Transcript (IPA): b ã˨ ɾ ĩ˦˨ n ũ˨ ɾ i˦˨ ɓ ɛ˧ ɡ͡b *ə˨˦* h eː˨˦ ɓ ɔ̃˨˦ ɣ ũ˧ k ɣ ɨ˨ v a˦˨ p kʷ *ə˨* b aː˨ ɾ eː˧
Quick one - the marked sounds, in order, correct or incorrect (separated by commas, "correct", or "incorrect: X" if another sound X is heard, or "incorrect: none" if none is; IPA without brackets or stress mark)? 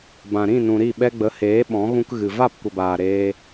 correct, correct